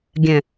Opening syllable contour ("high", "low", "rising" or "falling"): low